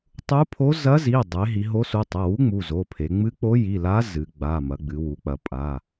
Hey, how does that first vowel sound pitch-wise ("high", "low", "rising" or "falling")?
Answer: rising